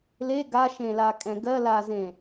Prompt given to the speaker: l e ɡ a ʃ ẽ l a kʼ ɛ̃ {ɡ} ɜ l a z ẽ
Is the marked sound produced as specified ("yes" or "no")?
yes